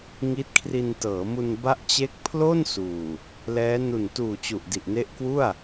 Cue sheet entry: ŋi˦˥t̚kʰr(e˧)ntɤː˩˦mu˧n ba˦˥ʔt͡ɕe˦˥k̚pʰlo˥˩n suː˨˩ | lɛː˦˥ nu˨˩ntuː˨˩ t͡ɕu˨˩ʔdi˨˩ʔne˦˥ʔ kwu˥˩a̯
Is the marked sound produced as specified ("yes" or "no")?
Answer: no